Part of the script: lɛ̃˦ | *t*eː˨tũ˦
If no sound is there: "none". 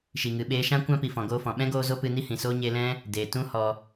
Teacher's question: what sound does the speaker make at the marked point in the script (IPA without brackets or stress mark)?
d